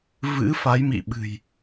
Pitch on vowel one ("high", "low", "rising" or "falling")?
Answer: rising